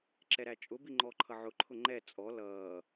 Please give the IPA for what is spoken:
ǁ ɛ ɾ æ t͡ʃʼ ʊ b i ŋ͡ǃ ɔ ǃʰ ʌ ʕ ʊ ǃʰ ʊ ŋ͡ǃ ɛ t͡sʼ ɔ l ʌː

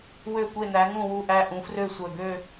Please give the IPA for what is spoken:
w ø˦˨ kʷ e˦˨ n æ˨˦ ŋ ũ˦˨ w u˦˨ ʔ æ˦˨ ʔ ũ˨˦ f r ø˦˨ sʷ œ˨˩ ɡ ø˦˨

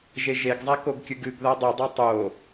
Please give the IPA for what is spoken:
ʒ e ʒ e ɡ zˤ a k o ɡ kʲ ɨ ɡ ɨ ɡ ð a dˤ e dˤ a tˤ o

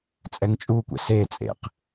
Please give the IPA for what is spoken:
t͡sʼ ɛ ŋ t͡ʃʼ u kʷ ɛ̰ s e t͡sʼ ḛ q

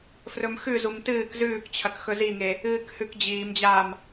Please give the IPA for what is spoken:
f r ɵ m x ʉ z u m t ɨː k z ʉː k t͡ɕʰ ɐ k x ɵ z i ŋ e | ɨː k h ʉ k d͡ʑ iː m d͡ʑ aː m

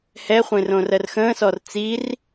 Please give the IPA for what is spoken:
h ɛ χʷ ẽ r õ r ɜ r x ə̃ː s ɔ r t͡s i r

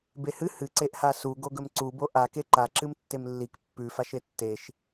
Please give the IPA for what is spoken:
b e h ɨ h ɨ ǀ e ʔ h a s u ɡ o ɡ ɵ m ǀ u b o ʔ a k e ǃ a ǁ ɨ m tː e m lː i k pː ʉ f a ʃ e tː e ʃ

